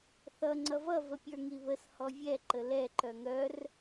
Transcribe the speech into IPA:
θ ʌ ŋ͡ǀ ʌ v ʌ v ə pʲ ə˞ ŋ i β ə s h ɔ vʲ ɛ ǃ ə l ɛ ǃ œ ŋ œ r

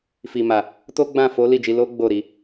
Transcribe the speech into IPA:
f i˨ m a˨ | t o˦ ɡ͡b ã˦˨ f o˨˦ l i˦˨ d͡ʒ i˧ l o˦ ɡ͡b o˦˨ ɾ i˧

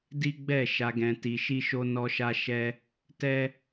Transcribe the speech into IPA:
d i˦ ɡ͡b ɛ˦˨ ʃ a˧ ɡ ɛ̃˧ t i˧ ʃ i˦ ʃ o˦ n ɔ˦ ʃ a˦ ʃ ɛ˦ | t ɛ˦

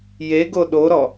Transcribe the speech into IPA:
j e ɡ o ɗ o ɾ ɔ

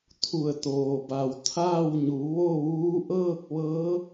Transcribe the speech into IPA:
t̪ʰ u˧˩ ə̯ t̪ oː˩ b a˩ w t̪ʰ aː˥˨ w ɲ u˩˧ ʋ o˥˨ ʋ uː˧˥ ʔ ɤː˥˨ k̚ ʋ ɤː˧˥

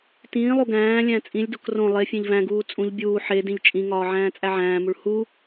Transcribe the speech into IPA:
t ĩː lˠ u ɡ æ̃ː lʲ æ̃ t͡sʼ ĩ lʲ d o k r õ lˠ e fʲ ẽ ʎ v æ̃ ɡ uː t͡sʼ ũ ʎ bʲ uː ħ e d ĩ ʎ t͡ʃʼ ĩ ŋ ɒː ʕ æ̃ː t͡sʼ æ ʕ æ̃ː m u ɭ h u

